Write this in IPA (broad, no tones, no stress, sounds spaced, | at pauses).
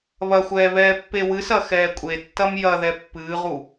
β ɐ xʷ ɛː β ɛː pː e w ɨ s ɐ x ɛː kʷʼ e tː ɐ m j ɐ ð ɛ pː ɨː ʁ u